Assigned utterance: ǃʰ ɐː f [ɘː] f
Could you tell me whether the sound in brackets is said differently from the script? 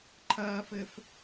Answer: no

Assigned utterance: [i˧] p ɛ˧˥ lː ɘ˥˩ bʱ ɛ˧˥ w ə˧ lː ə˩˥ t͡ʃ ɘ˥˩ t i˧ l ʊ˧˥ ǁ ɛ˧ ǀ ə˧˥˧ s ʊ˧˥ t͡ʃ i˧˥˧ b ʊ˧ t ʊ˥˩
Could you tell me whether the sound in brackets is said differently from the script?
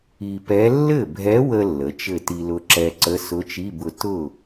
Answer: no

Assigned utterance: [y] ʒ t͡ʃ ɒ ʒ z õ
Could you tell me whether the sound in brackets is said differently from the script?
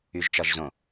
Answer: no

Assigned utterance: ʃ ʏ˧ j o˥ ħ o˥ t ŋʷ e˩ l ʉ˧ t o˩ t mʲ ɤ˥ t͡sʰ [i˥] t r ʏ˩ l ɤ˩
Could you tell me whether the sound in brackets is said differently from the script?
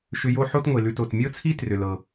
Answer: no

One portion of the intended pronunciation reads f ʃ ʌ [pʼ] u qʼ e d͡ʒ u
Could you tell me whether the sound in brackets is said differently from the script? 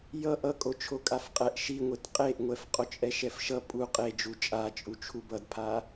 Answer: no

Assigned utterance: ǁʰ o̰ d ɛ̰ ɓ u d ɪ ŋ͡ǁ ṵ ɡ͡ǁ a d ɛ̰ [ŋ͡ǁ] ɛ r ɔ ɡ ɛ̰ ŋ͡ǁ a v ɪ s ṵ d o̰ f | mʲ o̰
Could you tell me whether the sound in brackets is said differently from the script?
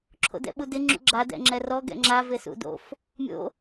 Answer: no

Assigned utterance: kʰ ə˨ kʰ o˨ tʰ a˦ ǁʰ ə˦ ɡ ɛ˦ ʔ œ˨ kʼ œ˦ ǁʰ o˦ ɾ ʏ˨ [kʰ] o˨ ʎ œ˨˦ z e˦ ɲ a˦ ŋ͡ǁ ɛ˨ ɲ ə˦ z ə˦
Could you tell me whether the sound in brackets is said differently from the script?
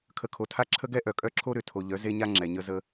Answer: yes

